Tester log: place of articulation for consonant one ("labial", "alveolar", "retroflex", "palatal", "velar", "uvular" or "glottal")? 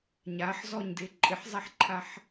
palatal